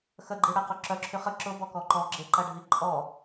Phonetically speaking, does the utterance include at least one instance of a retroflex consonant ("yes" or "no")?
yes